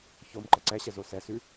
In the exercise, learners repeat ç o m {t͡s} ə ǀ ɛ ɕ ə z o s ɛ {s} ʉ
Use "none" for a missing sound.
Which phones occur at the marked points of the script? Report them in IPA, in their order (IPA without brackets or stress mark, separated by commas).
ǃ, s